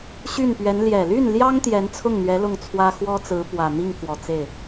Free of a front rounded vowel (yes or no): no